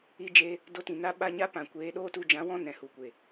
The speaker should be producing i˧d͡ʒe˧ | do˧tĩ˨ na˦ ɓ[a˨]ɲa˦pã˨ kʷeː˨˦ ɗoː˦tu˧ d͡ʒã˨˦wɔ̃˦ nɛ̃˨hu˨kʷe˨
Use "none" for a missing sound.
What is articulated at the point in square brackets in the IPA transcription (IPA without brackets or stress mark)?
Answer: a˧